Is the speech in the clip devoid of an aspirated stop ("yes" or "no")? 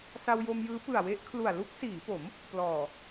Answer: no